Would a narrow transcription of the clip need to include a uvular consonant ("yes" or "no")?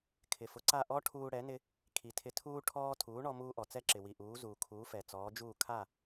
no